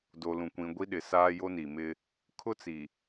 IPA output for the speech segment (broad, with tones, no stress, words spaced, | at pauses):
do˨lũ˨ kʷĩ˨ɡʷi˦ɗɪ˨ saː˦jo˦ ni˨mɪ˦ | kʰʊ˦t͡si˨